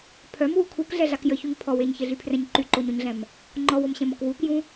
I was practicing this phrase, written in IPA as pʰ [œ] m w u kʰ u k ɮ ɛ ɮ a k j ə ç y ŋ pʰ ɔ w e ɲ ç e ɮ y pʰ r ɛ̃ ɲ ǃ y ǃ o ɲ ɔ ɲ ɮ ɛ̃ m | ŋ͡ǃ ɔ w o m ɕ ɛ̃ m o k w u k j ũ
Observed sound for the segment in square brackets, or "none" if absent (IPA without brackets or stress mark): œ